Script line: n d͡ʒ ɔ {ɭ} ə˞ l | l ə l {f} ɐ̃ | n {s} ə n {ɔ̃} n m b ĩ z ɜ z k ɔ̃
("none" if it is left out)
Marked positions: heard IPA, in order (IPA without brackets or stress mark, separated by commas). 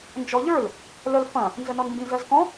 ʎ, f, z, ɔ